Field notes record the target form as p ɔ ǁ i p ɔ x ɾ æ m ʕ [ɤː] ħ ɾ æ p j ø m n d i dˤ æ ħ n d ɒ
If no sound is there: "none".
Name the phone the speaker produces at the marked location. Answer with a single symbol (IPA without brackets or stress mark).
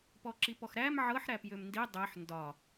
ɤ